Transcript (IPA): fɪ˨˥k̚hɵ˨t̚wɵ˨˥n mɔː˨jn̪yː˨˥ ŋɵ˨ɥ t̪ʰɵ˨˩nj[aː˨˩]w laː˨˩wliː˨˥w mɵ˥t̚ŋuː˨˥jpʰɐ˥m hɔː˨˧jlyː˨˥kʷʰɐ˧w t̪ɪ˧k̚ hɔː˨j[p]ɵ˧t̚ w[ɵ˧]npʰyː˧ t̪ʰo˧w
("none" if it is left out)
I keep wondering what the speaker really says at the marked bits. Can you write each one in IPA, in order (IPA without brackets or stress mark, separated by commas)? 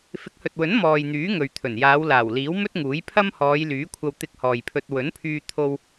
aː˨˧, pʰ, ɵ˨˥